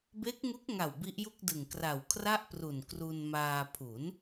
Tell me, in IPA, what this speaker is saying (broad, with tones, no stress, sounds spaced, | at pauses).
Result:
b e˦˥ k̚ ŋ u˦˥ k̚ ŋ a˨˩ w b i˦˥ ʔ j u˥˩ k̚ d ɯ˨˩ ŋ k r a˨˩ w kʰ r a˥˩ ʔ p r u˨˩ n k r u˧ n m aː˧ pʰ u˩˦ n